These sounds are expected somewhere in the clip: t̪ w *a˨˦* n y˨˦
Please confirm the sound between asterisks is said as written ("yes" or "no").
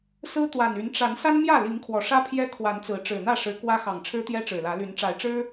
no